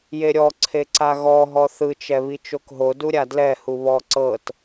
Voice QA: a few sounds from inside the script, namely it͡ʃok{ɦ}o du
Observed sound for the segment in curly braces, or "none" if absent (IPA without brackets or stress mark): ɦ